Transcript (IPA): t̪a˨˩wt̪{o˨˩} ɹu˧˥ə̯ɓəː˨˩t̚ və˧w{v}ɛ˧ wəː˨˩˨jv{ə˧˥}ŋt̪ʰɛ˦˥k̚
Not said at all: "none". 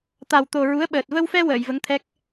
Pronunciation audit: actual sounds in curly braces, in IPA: o˨˩, f, ə˧˥

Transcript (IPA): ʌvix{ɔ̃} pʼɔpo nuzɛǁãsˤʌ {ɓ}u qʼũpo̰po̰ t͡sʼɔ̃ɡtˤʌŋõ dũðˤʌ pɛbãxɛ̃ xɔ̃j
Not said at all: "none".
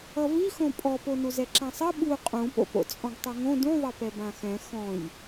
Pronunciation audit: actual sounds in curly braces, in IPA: õ, ɓ

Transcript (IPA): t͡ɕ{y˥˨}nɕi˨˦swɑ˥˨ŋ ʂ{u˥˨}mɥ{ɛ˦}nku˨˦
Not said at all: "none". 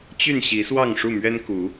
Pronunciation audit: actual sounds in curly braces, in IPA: y˥˨, u˥˨, ɛ˦

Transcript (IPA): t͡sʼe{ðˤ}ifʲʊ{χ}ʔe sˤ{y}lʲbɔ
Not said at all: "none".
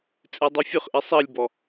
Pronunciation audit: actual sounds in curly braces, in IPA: dˤ, χ, i

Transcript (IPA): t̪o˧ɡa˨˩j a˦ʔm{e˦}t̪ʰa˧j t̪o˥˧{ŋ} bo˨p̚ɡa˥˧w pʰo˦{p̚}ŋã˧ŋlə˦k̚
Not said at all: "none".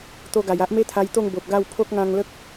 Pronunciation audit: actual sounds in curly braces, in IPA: e˦, ŋ, k̚

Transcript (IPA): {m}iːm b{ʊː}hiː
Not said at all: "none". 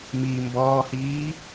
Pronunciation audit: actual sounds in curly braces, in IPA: m, ɔː

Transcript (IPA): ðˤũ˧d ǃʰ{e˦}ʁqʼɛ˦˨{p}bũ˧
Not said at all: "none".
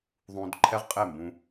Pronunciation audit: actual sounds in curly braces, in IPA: ɛ˦, m

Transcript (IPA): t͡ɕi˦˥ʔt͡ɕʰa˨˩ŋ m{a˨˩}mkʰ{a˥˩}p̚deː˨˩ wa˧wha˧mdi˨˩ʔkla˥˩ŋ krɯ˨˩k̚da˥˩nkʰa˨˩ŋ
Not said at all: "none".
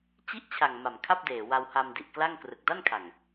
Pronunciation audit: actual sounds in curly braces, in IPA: a˨˩, a˥˩

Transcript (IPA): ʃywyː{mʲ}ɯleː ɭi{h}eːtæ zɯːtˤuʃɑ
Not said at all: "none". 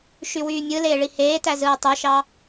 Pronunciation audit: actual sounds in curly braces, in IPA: mʲ, h

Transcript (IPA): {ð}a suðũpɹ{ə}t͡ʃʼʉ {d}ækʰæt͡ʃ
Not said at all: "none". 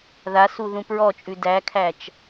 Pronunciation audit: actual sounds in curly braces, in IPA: ð, ɔ, d

